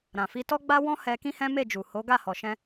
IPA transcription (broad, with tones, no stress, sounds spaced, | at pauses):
ɾ ã˨ f i˧ t ɔ˦ ɡ͡b a˦ w ɔ̃˦ h ɛ˧ k ĩ˦ h ɛ̃˦ m e˦˨ d͡ʒ u˨ h o˨˦ ɡ a˦˨ h ɔ˨ ʃ ɛ̃˧